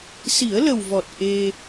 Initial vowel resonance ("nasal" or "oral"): oral